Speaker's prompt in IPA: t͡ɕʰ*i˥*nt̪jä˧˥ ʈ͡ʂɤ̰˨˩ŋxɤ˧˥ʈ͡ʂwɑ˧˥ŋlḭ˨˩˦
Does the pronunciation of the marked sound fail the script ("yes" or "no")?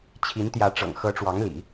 yes